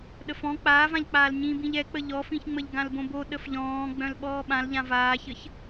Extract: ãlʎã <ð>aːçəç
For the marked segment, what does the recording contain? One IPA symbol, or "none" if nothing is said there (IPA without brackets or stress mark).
v